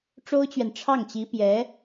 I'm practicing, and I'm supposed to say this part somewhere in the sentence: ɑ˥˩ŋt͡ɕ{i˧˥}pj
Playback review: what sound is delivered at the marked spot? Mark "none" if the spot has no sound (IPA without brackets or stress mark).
i˧˥